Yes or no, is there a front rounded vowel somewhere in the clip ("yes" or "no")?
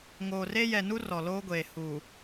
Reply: no